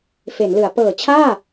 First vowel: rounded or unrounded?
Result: unrounded